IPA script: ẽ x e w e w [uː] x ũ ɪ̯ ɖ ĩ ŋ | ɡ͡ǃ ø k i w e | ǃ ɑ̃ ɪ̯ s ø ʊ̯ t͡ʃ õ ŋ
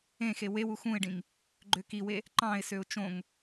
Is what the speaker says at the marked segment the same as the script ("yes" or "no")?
no